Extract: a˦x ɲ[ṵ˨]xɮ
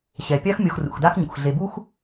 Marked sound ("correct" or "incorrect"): incorrect